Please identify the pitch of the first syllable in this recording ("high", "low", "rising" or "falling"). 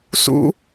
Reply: high